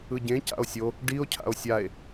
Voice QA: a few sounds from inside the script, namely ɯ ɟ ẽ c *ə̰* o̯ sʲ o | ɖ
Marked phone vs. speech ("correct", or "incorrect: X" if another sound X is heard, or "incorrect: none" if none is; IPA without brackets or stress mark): incorrect: a̰